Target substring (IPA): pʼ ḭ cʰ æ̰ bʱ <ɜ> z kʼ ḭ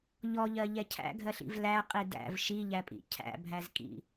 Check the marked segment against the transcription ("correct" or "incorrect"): incorrect